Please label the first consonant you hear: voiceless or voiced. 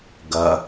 voiced